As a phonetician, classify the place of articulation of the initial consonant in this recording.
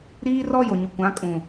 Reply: alveolar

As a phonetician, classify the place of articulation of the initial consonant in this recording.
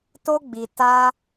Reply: alveolar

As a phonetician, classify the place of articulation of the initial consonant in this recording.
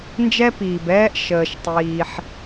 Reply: alveolar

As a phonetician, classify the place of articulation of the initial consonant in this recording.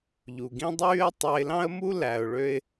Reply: palatal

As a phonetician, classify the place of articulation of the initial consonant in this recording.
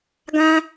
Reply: velar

